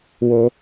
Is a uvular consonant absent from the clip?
yes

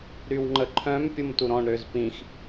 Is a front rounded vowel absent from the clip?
no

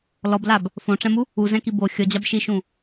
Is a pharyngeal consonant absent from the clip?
yes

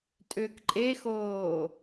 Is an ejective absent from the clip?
no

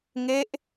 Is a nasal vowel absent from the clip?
yes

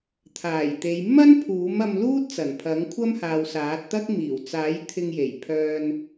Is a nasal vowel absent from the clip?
yes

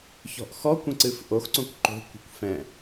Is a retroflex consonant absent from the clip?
yes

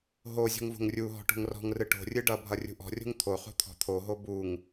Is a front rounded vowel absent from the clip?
yes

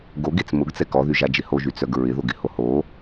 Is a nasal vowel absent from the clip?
yes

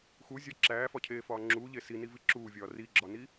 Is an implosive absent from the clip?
yes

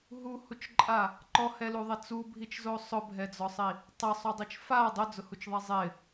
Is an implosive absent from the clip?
yes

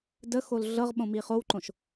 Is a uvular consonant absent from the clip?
no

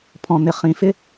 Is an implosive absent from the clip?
yes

